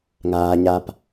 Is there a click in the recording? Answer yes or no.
no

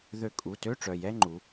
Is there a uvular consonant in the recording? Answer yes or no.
no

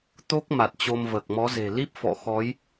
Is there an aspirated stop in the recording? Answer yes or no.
no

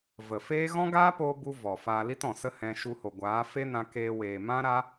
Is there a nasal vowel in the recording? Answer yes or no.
yes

